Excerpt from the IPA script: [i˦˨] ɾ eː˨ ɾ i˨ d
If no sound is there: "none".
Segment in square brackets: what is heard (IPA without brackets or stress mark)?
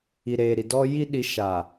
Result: i˨